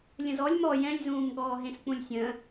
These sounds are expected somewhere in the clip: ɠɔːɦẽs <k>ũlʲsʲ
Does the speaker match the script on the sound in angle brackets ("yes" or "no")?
no